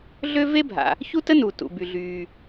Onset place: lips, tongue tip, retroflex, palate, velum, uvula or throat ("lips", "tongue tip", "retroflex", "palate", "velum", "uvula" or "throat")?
tongue tip